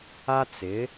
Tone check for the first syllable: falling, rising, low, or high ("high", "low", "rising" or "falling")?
high